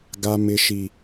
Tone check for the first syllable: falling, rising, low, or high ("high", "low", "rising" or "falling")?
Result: high